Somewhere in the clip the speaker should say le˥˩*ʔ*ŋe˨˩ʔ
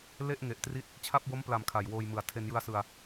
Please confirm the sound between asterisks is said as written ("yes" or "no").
yes